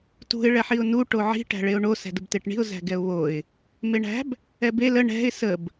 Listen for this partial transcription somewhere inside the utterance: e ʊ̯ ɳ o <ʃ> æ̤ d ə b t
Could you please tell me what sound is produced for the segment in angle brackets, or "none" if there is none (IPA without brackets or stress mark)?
s